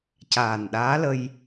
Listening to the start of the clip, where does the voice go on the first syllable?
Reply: low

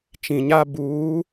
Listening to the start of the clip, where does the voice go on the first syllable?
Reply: low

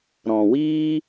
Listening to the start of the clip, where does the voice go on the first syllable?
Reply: low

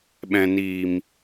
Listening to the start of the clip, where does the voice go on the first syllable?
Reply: low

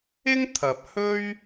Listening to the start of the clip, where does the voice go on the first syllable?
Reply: high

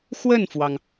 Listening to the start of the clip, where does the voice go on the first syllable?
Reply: falling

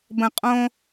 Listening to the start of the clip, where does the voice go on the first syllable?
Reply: low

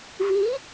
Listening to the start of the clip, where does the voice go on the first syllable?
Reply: rising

